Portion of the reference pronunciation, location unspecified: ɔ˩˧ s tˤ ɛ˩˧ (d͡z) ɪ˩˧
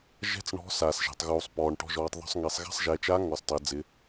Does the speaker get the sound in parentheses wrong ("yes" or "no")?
no